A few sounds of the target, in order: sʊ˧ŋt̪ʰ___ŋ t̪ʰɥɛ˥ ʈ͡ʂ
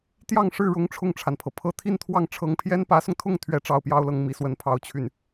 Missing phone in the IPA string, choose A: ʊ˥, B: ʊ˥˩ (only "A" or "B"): B